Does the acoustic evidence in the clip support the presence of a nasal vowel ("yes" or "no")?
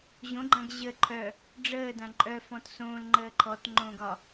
yes